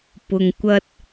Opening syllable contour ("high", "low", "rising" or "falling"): low